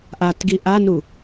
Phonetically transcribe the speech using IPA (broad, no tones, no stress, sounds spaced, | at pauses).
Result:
ʔ a t ɡ i ʔ a n u